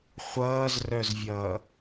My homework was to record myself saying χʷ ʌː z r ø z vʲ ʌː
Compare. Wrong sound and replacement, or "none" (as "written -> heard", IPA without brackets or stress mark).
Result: ø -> œ